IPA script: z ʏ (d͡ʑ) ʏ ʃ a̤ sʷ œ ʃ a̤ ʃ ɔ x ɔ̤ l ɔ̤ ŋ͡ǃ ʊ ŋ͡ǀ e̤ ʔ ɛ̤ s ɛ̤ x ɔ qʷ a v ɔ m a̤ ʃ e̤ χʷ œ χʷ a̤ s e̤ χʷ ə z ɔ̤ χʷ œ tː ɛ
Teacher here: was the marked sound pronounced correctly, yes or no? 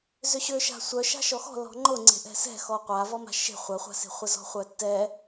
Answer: no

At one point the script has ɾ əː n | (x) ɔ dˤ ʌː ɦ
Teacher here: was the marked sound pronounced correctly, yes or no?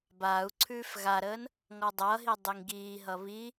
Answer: no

